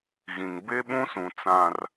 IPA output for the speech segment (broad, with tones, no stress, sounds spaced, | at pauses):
ɣ ĩ˨ ŋ b e˦ ɓ ũ˦ s ũ˨ t͡s ã˦ r